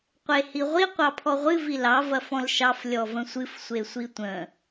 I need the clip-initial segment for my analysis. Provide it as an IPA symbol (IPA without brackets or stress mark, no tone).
qʷ